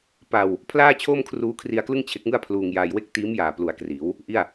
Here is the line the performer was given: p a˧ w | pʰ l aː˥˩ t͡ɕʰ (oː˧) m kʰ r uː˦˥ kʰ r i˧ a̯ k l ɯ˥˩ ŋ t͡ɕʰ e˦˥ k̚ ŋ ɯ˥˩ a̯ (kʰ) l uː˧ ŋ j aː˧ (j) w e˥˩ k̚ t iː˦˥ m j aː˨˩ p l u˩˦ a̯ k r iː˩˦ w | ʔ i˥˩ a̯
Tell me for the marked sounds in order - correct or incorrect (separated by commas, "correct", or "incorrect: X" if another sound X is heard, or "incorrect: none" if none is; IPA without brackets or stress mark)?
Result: incorrect: oː˥˩, incorrect: pʰ, correct